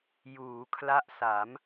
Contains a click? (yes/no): no